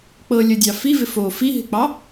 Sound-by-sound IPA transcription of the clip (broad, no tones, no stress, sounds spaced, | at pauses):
k͡p ɤ lʲ ə dʲ ɑ f i v ɪ f o f i ɦ ɪ k͡p ɑ